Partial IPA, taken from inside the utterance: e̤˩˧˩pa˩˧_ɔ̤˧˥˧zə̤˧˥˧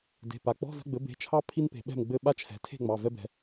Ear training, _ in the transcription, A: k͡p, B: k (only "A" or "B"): A